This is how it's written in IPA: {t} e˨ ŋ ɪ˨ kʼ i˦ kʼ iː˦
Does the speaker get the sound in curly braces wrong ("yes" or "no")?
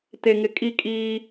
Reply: no